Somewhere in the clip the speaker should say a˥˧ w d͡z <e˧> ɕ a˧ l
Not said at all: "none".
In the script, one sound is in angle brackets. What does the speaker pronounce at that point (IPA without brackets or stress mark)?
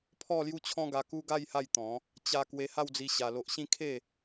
i˧